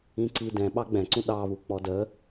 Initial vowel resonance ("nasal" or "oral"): nasal